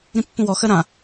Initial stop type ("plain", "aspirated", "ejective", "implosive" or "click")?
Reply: plain